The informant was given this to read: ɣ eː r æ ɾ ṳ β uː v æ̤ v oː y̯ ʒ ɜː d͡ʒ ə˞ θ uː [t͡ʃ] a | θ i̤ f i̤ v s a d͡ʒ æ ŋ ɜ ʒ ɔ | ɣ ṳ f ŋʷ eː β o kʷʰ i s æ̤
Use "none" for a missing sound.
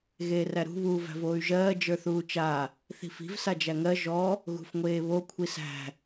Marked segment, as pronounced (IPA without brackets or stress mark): t͡ʃ